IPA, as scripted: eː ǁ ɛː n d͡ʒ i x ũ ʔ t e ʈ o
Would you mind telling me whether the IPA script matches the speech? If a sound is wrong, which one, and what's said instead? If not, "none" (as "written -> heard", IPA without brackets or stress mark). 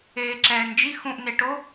t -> n